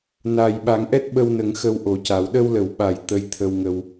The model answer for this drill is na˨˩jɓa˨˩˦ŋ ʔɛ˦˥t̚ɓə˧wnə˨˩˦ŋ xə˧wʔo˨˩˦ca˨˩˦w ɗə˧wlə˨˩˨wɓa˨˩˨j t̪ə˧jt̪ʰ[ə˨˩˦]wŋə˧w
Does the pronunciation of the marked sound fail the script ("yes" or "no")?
yes